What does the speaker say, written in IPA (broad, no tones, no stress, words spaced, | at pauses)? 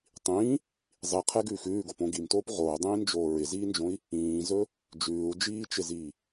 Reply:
tˤĩː | zˤiqʰɛɡʉːx ʉːɡopõ ɡimtoːp ʁoːdˤĩːnd͡ʒoː ɹɪziːnd͡ʒõi̯ | ĩːzɵ | d͡ʒʉːu̯d͡ʒiːt͡ʃɪziː